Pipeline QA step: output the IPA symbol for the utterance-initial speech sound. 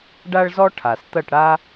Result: ɖ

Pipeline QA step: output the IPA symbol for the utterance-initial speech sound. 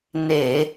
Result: n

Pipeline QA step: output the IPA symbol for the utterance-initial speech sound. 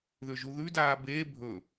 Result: ð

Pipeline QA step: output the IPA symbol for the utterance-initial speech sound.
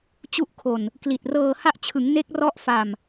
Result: t͡ɕ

